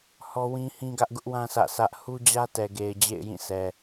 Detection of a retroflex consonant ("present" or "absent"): absent